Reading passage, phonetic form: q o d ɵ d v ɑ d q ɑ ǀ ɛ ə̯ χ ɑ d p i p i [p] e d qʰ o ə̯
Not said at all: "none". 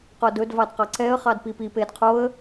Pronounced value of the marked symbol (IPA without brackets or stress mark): p